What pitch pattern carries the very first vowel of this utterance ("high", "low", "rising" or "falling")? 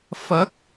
rising